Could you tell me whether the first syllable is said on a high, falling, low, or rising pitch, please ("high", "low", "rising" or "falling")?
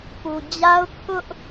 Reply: low